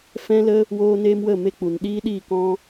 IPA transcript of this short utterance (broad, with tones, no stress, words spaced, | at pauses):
fɛ̃˦lə˦ | woː˦neː˦m wə˦˨ me˦k͡pu˨n ɗiː˦ɗiː˦˨kɔ̃˦